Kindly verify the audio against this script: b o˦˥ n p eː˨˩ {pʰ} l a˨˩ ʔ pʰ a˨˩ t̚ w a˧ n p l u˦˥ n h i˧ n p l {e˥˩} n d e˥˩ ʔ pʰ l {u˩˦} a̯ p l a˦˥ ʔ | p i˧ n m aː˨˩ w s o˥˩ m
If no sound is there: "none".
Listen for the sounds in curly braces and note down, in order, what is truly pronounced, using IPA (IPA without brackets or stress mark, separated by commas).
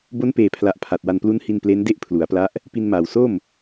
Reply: pʰ, e˦˥, u˩˦